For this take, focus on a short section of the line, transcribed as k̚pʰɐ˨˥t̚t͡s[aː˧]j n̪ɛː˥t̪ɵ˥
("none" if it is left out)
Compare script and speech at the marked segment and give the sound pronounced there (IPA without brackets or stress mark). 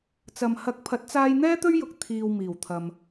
aː˧